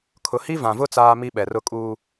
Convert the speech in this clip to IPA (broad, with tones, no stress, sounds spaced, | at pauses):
kʰ ʊ˨ h i˦ v ã˨ v ʊ˦ t͡s aː˦ m i˦ ɓ ɛ˨ r ʊ˦ kʼ uː˦